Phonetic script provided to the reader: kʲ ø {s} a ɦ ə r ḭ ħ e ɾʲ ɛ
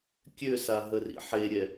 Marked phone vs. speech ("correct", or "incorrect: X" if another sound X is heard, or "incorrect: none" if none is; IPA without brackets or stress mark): correct